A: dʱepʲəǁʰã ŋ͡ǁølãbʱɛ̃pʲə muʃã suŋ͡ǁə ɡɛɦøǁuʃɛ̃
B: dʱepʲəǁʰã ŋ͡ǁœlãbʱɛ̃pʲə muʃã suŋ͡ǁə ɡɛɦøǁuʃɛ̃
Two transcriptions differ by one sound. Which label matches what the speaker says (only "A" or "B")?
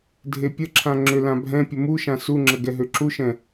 A